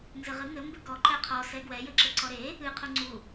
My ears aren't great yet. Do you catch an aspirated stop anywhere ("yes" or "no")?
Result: yes